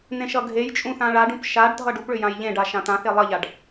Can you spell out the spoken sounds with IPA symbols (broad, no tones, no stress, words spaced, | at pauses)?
n̪ẽʃʌɡʱejt͡ʃʼũ θãɭaɖũp ʃaɖ dʱʌɖupɭʏ jãjʎẽɖa ʃãt̪ãθe lˠʌʎaɖ